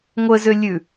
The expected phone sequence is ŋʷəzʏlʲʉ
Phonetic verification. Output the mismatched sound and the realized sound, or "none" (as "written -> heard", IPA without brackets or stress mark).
none